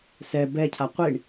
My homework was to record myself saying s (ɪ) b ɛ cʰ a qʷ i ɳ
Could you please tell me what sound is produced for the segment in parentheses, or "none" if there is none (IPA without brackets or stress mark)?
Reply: ɛ